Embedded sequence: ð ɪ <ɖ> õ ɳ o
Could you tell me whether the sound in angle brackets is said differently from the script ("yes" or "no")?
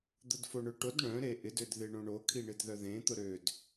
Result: yes